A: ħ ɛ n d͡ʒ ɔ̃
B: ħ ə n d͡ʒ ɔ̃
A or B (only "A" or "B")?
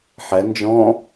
A